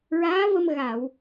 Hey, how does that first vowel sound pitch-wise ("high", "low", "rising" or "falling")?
rising